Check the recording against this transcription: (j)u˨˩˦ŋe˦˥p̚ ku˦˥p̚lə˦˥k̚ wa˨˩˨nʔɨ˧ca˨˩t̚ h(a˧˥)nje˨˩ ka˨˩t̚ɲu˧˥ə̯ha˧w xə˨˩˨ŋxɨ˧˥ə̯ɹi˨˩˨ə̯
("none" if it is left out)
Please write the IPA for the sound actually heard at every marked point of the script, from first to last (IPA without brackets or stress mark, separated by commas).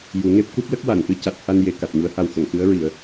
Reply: j, a˧